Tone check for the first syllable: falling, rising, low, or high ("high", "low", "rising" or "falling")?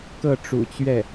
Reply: falling